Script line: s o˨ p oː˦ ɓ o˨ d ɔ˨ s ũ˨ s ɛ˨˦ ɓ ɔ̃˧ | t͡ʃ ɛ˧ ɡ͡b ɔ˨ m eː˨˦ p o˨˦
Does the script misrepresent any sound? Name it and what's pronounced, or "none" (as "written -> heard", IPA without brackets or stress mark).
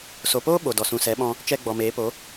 none